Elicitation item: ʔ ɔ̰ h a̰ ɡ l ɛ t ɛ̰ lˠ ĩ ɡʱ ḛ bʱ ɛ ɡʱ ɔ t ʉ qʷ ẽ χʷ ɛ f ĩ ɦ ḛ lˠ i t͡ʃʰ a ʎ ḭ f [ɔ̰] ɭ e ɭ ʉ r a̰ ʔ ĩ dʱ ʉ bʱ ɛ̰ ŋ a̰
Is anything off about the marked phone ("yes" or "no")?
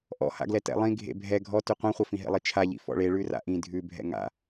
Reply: no